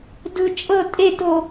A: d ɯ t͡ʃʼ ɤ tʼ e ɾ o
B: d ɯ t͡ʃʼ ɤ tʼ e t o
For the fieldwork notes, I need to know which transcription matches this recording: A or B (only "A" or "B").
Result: B